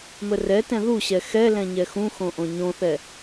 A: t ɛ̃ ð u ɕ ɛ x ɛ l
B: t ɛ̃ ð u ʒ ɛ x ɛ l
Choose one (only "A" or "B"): A